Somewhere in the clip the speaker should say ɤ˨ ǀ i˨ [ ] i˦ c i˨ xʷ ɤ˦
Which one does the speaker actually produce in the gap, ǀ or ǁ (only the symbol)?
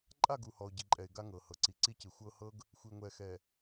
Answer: ǀ